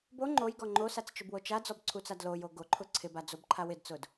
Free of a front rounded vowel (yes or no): yes